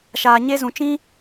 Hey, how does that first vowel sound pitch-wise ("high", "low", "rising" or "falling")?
low